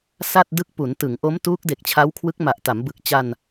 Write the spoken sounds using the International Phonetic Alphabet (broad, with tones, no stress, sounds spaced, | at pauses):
s a˥˩ t̚ d ɯ˦˥ k̚ p u˩˦ n t ɯ˩˦ ŋ ʔ o˦˥ m t uː˦˥ k̚ d e˨˩ k̚ t͡ɕʰ a˦˥ w kʰ w ɯ˦˥ k̚ m a˨˩ ʔ t a˩˦ m b ɯ˨˩ k̚ t͡ɕ a˧ n